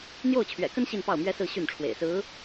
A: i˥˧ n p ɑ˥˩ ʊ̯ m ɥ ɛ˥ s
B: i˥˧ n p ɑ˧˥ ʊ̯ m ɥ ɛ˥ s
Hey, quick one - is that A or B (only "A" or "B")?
A